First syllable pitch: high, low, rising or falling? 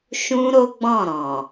high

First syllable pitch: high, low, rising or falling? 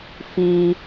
high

